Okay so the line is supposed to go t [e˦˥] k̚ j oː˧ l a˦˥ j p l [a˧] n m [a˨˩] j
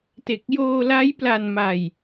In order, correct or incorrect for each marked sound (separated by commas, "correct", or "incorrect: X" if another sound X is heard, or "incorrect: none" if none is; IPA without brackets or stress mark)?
incorrect: e˨˩, correct, incorrect: a˧